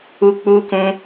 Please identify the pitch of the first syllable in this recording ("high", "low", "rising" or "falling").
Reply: high